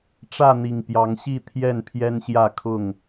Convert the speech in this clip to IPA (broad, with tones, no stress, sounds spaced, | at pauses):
ʈ͡ʂ ä˥˨ n̪ i˨˩ ŋ p j ɑ˨˦ ŋ ɕ i˥˨ t̪ʰ j ɛ˥˨ n pʰ j ɛ˦ n ɕ j ä˥˨ kʰ ʊ˥˨ ŋ